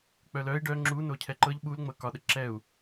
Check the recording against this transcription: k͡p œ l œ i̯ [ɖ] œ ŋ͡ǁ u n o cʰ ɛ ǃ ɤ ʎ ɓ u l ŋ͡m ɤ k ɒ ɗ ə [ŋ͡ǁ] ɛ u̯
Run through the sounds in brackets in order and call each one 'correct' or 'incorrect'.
correct, incorrect

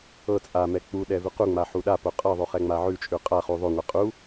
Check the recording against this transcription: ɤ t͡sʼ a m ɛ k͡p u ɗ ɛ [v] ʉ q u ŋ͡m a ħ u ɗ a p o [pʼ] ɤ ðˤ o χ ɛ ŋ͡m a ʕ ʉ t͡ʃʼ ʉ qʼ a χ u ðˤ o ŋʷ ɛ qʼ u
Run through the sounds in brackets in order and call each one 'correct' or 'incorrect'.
correct, incorrect

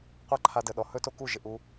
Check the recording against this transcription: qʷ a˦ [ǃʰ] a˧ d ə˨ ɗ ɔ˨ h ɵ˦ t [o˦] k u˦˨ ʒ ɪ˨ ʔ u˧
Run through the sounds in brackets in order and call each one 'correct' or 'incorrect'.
correct, correct

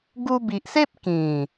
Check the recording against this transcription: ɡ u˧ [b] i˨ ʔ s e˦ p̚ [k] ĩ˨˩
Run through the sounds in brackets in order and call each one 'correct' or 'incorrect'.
correct, correct

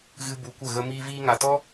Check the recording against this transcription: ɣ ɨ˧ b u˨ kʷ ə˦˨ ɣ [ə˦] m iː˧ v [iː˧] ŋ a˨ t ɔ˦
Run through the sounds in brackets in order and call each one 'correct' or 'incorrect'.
correct, correct

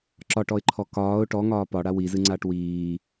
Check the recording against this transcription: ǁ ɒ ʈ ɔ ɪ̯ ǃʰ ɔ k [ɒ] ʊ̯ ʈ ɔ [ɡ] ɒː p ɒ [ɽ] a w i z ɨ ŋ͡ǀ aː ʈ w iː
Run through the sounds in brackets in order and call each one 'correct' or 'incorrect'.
incorrect, incorrect, correct

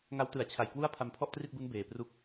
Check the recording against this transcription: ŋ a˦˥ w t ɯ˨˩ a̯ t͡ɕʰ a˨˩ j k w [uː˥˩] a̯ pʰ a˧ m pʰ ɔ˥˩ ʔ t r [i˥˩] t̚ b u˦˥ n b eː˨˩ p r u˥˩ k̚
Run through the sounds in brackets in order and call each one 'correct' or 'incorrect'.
incorrect, correct

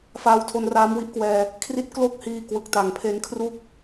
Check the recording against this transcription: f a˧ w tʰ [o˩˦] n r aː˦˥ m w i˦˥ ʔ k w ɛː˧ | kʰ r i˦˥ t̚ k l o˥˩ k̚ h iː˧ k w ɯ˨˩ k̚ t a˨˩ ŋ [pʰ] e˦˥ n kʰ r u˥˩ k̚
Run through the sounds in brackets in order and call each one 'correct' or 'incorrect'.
incorrect, correct

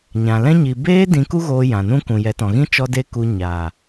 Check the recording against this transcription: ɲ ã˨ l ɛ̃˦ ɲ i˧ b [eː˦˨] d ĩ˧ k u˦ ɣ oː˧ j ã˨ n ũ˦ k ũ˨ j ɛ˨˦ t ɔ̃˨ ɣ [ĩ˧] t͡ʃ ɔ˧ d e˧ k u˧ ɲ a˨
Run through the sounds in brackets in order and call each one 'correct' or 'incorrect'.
incorrect, incorrect

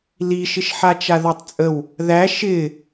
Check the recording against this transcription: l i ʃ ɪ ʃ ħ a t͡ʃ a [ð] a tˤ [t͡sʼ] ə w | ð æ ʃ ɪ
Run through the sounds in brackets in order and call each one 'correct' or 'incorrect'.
correct, correct

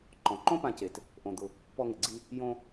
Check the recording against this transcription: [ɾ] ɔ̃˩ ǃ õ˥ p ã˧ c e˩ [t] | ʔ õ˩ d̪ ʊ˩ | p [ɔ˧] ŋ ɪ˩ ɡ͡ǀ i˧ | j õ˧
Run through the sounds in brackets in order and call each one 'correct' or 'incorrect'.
incorrect, correct, correct

